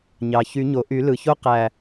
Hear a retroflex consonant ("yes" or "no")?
no